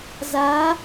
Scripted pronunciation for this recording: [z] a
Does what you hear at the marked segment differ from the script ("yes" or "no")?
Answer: no